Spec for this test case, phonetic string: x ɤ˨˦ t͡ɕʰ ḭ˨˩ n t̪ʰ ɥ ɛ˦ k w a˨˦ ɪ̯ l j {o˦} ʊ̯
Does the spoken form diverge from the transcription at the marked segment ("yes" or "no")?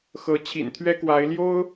no